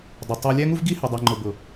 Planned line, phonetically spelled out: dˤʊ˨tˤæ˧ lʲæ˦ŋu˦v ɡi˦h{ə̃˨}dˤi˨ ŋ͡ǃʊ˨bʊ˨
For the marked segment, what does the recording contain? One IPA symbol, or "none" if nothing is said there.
ə˨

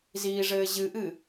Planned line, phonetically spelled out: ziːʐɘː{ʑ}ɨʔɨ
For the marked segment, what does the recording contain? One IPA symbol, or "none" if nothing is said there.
ʑ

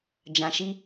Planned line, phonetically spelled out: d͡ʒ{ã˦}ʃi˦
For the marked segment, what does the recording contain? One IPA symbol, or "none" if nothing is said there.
ã˨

